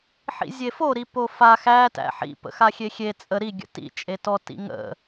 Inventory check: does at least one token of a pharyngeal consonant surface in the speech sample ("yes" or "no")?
yes